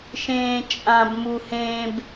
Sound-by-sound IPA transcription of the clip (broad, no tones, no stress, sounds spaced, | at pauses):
ʃ ẽː t͡ʃʼ ã b m u h ẽ b